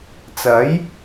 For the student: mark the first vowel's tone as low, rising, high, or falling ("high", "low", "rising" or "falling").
rising